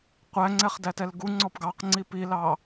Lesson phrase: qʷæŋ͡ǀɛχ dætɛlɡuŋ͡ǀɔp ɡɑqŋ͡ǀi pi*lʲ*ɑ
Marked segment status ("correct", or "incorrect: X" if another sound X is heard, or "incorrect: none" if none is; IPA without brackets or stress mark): incorrect: l